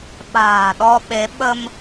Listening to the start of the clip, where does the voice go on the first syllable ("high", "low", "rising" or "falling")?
low